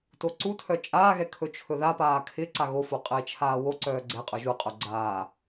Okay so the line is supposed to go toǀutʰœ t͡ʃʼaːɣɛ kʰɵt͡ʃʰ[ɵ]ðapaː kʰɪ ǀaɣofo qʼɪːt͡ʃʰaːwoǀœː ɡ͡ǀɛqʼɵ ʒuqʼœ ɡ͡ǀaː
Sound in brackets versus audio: correct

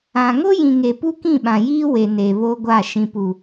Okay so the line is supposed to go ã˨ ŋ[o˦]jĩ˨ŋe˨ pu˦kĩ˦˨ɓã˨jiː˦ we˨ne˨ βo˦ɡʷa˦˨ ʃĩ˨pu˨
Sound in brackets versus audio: correct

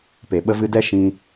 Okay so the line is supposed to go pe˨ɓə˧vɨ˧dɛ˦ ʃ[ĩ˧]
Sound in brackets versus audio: correct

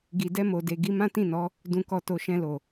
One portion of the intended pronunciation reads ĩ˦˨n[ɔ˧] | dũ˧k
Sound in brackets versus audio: incorrect: ɔ˨˦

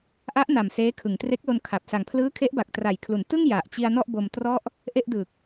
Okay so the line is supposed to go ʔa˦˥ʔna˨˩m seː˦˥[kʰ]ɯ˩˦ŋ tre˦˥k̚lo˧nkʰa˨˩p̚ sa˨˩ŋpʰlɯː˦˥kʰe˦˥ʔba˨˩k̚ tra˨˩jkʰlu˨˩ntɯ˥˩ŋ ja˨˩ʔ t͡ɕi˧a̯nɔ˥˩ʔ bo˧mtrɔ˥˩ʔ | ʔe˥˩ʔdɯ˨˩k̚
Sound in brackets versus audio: correct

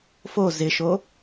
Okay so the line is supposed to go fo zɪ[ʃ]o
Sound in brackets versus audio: correct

